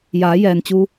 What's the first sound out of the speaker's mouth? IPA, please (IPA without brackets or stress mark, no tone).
j